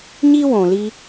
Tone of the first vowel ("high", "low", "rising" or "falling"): high